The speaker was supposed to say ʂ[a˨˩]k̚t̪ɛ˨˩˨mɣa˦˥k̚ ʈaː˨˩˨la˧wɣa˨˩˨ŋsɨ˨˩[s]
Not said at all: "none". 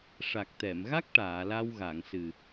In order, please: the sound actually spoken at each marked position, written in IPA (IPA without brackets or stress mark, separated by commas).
a˨˩, none